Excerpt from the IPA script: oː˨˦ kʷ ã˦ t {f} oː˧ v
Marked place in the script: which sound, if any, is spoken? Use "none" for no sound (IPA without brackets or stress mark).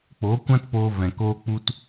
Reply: p